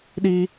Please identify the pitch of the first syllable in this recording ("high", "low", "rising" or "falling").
high